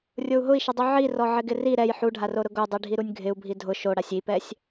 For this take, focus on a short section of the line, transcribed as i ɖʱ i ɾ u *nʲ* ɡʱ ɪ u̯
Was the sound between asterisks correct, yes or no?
yes